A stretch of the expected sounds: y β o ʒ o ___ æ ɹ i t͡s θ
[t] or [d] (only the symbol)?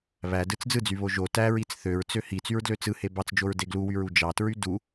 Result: t